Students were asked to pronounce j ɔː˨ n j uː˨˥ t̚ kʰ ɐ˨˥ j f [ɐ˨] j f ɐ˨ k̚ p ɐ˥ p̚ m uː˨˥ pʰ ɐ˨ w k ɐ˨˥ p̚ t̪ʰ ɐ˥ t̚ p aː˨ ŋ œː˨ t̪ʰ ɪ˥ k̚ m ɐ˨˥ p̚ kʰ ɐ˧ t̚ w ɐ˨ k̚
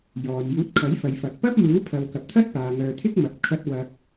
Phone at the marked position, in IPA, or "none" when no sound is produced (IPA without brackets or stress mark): ɐ˨